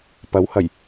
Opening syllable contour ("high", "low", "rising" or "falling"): rising